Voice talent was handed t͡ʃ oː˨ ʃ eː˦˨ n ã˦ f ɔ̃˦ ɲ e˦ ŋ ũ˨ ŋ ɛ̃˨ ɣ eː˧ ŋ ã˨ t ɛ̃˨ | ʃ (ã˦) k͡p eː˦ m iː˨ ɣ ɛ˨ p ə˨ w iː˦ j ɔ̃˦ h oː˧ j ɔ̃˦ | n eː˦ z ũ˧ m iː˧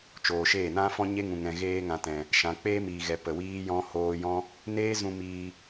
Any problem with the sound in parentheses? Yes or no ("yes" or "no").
yes